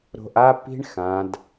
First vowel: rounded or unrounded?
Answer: rounded